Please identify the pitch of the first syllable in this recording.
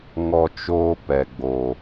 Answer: high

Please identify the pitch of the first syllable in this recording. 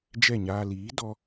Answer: falling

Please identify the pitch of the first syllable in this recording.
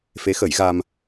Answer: rising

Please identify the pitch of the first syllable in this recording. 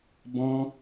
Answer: high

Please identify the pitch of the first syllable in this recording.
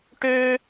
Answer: high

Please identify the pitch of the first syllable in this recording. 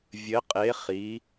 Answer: rising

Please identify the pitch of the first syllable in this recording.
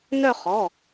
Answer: falling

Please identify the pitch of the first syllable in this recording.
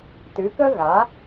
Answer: rising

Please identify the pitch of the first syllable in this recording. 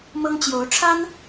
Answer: high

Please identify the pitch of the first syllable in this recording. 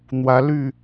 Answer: rising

